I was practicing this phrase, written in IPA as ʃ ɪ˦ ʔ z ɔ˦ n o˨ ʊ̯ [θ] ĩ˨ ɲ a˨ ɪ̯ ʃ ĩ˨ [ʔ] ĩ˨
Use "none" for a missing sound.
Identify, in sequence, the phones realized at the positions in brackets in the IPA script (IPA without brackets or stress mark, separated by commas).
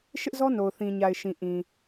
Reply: θ, ʔ